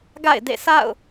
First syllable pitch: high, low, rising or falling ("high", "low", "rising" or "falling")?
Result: falling